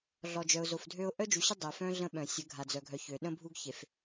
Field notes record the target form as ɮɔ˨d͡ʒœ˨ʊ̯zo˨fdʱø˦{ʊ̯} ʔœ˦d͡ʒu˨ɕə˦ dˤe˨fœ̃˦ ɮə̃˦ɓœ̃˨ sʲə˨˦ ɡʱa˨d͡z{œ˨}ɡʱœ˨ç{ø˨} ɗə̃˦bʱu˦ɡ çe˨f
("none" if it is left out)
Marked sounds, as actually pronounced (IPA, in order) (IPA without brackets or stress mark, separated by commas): ʊ̯, œ˨, ø˨